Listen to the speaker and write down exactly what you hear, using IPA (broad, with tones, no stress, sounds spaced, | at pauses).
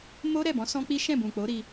m o˦ ɾ ɛ˦˨ b ɔ̃˨˦ s ɔ̃˦ k͡p i˦ ʃ ɛ̃˦˨ b ũ˨ k͡p o˨˦ ɾ i˧